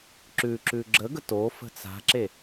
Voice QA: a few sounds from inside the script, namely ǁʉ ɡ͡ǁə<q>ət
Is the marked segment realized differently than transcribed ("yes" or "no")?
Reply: yes